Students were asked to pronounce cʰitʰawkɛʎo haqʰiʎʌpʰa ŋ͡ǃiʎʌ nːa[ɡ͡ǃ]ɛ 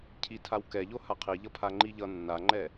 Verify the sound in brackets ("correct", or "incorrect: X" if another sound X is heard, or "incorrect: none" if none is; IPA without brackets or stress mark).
incorrect: ŋ͡ǃ